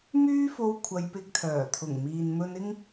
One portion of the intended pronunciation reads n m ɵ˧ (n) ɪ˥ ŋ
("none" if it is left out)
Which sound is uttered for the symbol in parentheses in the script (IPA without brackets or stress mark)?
n